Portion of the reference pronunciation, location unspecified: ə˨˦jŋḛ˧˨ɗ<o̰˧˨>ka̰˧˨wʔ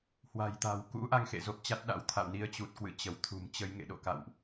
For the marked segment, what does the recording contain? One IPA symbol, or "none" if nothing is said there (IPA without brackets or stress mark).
o̰˧˨